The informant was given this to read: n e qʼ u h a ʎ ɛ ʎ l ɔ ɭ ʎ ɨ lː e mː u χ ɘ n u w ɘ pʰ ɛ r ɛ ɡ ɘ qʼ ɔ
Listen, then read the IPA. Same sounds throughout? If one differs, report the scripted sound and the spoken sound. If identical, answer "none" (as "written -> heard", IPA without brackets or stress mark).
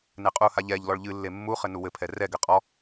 none